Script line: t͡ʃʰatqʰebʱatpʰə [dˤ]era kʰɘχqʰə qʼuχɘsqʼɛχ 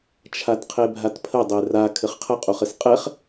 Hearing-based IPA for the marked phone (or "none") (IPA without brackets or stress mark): dˤ